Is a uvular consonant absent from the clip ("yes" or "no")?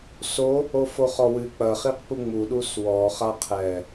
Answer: no